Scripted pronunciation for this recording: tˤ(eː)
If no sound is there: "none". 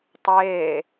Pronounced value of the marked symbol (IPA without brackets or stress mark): eː